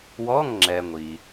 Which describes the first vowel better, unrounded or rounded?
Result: rounded